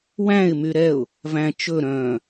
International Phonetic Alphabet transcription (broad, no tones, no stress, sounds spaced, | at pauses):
w æ̃ ɪ̯ m y ɾ ɛ ʊ̯ | v æ̃ t͡ʃ ɵ ɾ œ̃